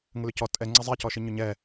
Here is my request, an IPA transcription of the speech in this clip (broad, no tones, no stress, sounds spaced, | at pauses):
ŋ ə l ʏ c ɔ tʼ ɛ ŋ͡ǀ ɐ zˤ ɛ c ɔ ʃ i ɲ ʏ ɲ ɛ